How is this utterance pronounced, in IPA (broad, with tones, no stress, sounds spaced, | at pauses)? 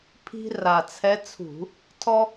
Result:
pʰ i̤˧ r a˨˩ t͡sʰ ɛ˧˥ t͡sʰ ṳ˧˩˧ | tʰ ɔ˥